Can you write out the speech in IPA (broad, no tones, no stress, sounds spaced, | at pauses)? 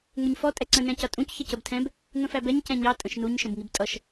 ŋ ʊ ɲ f ɔ tʼ ɛ ǀ ə̃ n ɛ̃ c ʌ tʼ ũ c ç ə c ə b tʰ ɛ̃ b | ŋ ə̃ f æ b ɛ ɲ c ɛ̃ ɲ ɑ tʼ ə̃ ʃ n u ɲ ʃ ə̃ b ŋ i b tʼ ʌ ʃ